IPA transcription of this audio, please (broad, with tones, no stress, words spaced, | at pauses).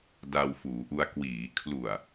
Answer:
da˧wfuː˩˦ʔu˧a̯ kwiː˩˦ kʰlu˨˩a̯